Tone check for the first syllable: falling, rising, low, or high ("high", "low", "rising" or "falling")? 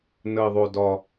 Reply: low